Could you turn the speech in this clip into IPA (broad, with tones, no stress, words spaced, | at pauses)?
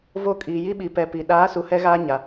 vo˦˨kʼiː˨ji˦ɓi˨ pɛ˨ pi˨ ɗaː˨˦su˨ hɛ˦ɣaː˦ɲa˨